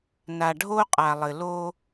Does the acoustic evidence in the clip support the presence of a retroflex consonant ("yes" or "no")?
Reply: yes